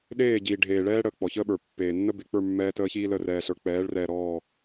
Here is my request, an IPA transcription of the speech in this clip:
ɗ eː˦˨ ɟ iː˨ ɖʱ eː˨ ɭ ɛː˦ ɽ əː˨ k͡p ɔ˨ ç əː˦ ɓ ə˞˨ pː eː˨ nː ə˦ b e˨ k͡p ə˞˦˨ mː ɛː˦ t əː˦ ç iː˦ l ə˦˨ r ɛː˨ ɬ ə˞˨ k͡p ɛː˨˦ ɭ r ɛː˨ ɾ ɔː˦˨

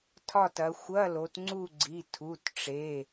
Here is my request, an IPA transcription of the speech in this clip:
tʰ ɒ˦˨ t ɐ˩˧ xʷ ɐ˧˥˧ l o˩˧ t ŋ͡ǀ u˦˨ ɡ͡ǀ i˩˧˩ tʰ u˩˧˩ t ʈ͡ʂ e˩˧˩

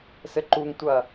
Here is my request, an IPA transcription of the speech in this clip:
s ɘ ǃ u ŋ tʷ ɐ

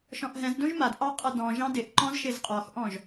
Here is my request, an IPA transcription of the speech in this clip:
ʃ ɔ̃ ʔ ɦ ɛ̃ z d õ ʒ m a d ʔ ɑ qʼ ʌ d ɔ̃ ʒ ɑ̃ d ɪ ʔ ǃ ɔ̃ z ʃ ɪ z qʼ ɔ x ʔ ɔ̃ ʒ

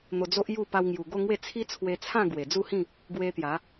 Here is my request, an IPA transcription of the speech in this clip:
n̪ o˧ d͡z o˦ ʔ j u˥˧ p a˧ w ŋ j u˨˩ ɡ o˥˧ ŋ w e˥˧ t͡sʰ i˦ t͡sʰ w e˧ t͡sʰ ã˥˧ ɡ w e˨˩ d͡z u˥˧ h ĩ˥˧ | ɡ w e˦ t̪ j a˨˦

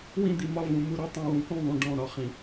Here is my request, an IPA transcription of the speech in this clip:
w ĩ˦ d̪ i˨ m ɒ˦ v ũ˨ m u˦ ɾ ɔ˦ tˤ ũ˨ w ũ˨ k ũ˦˨ ðˤ ũ˨ ɖ ɔ̃˦˨ ɾ ɒ˦ χ ĩ˨

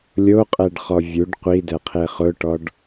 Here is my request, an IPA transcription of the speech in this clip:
lʲ o qʼ ɛ ɖ χ ɔ vʲ u ɖ qʷ i d ɛ qʰ e χ ʊ ʈ ɔ ɖ

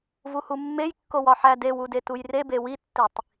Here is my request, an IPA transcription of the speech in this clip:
v u h u mː e j kː o w ɒ ħ æ d e w u d e t u j r e b e w i tː i tˤ

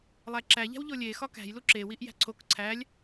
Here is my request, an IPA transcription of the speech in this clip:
lˠ æ ǁ æ ʎ æ̤ w ʎ o lʲ e x ɒ k æ̤ j l u ǁ e w i ʔ j æ̤ ǀʰ o k ǀʰ æ lʲ

